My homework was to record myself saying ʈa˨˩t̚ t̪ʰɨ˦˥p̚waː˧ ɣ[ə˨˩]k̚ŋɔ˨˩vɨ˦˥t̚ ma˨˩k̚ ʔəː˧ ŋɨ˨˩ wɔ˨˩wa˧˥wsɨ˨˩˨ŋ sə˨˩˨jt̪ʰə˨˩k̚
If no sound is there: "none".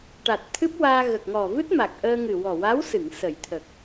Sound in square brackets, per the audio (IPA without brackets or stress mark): ə˨˩